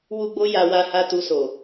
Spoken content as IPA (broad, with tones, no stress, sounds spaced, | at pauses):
w u˦ ɡ͡b o˦ j a˧ w a˧ h a˧ t u˧ s o˨